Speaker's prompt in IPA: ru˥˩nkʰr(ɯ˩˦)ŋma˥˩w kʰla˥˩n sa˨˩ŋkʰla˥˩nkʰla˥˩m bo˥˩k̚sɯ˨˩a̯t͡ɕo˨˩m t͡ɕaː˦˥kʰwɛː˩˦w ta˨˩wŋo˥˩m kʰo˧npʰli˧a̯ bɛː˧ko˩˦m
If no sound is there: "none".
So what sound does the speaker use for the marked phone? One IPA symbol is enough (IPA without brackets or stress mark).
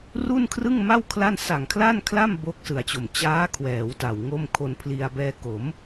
ɯ˥˩